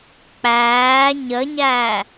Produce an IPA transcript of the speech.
k͡p æː ɲ ə ɲ æ

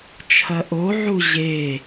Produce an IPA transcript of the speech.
t͡ʃʰ ɐ ʔ o ʕ u ʑ e

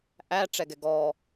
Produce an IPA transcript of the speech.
ʔ æ ʈ͡ʂ ɛ ɡ ɛ ɡ ɔ

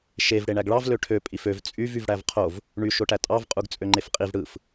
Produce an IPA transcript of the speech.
ʃ e v ɽ e ɳ æ ɡ ɭ ɑ v l ø ʈʰ ø pʼ i f ø v t͡sʼ y v y v ɽ æ v qʰ o v | ɳ y ʃ o ʈ æ tʼ ɑ v qʼ u ɡ t͡sʼ ø ŋ͡ǃ e f qʼ i v ɽ ɯ f

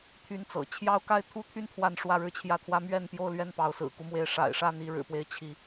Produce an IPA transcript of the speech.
t̪ʰ y˦ n t͡s ɤ̰˨˩ t͡ɕʰ j ɑ˦ ʊ̯ k a˦ ɪ̯ t̪ʰ u˥˨ t̪ʰ y˥˨ n t̪ʰ w a˥˨ n ʂ w ä˥˨ ɻ ɻ̩˥˨ t͡ɕʰ j ä˥˨ t̪ʰ w ä˦ m ɥ ɛ˥˨ n p j o˥˨ ʊ̯ l ɥ ɛ˥˨ n p ɑ˨˦ ʊ̯ s ɹ̩˨˩ k u˦ m w e˨˦ ɪ̯ ʂ a̰˨˩ ɪ̯ ʂ a˥˨ n i˥˨ ɻ ɻ̩˨˩ p w e˨˦ ɪ̯ t͡ɕʰ i˨˦

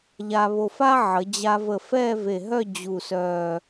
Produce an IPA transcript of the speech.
ʎ a˧ β o˧˩ f a˥ ʕ ə˩˧ d͡ʑ a˧ v ə˧˩ f ɛ˥˧ v e˧˩ ɦ œ˥˧ d͡ʑ u˧˩ s œ˧˩

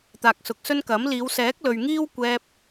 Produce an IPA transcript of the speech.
t̪ aː˨ k̚ s ʊ˨ k̚ s ɵ˥ n k ɐ˨˥ m l iː˨˧ w s ɛː˨˥ k̚ l ɵ˨ ɥ ŋ iː˥ w kʷ ɛː˧ p̚

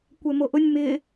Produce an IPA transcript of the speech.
kʷ ɛ m o ʔ ʊ nʲ m ɪ

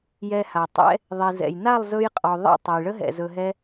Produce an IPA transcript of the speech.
j ɛ˧ h a˨ tˤ ɛ̰˦ | ðˤ i˨ z ɛ̰˨ j n a˦˨ lˠ z ɵ˧ j qʼ ɔ˨ ðˤ a̰˦˨ tˤ a˨ j ɭ ə˦ ɦ ɛ̰˨ z ɵ˧ ɦ ɛ˦

